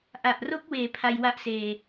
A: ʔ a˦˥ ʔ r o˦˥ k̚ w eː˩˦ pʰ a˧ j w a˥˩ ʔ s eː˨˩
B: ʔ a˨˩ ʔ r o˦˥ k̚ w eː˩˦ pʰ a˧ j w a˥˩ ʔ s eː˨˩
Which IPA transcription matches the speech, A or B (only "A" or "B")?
B